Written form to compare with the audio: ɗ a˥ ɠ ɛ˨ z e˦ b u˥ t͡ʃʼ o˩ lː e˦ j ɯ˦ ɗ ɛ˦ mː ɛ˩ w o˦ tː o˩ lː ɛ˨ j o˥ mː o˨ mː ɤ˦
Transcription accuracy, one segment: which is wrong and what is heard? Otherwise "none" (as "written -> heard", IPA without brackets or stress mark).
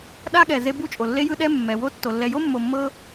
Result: none